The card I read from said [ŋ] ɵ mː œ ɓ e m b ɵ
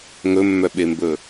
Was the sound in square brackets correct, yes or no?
yes